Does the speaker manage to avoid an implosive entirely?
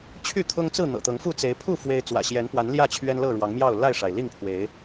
yes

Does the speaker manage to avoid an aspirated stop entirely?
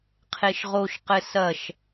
no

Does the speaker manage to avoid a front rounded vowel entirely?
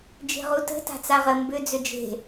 no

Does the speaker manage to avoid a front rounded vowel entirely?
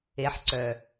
no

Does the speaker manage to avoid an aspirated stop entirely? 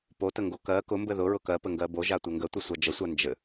yes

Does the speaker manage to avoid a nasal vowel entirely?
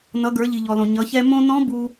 no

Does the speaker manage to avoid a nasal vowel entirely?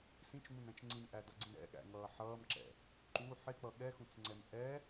no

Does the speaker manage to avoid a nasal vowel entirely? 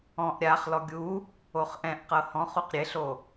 no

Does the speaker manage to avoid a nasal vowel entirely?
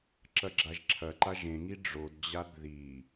no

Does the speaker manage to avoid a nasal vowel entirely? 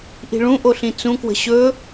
no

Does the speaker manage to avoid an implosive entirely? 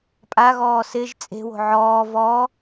yes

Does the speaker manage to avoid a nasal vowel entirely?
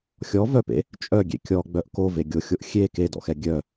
yes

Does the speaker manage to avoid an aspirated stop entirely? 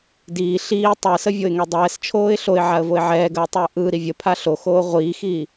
no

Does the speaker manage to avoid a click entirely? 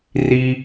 yes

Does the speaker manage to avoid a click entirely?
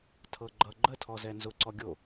no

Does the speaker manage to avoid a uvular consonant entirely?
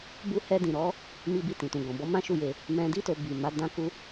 yes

